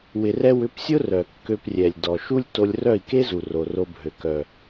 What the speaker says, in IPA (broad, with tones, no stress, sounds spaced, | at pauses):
w ɪ˧ r ɛ˦ w ʏ˧ p sʲ ʊ˦ r œ˨ kː ø˧ p rʲ ɛ˨ lʲ d ɔ˨ ʃ u˦ lʲ t o˧ lʲ r œ˦˨ i̯ k e˦ z u˨ r o˨ r o˧ bʱ ø˨ k œ˨